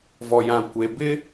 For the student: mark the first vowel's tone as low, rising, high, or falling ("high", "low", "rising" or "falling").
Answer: low